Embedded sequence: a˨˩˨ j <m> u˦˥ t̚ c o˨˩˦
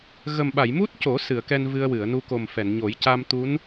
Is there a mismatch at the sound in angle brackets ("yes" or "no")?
no